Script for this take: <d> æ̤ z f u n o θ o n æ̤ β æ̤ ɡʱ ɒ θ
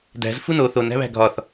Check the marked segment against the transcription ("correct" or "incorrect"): correct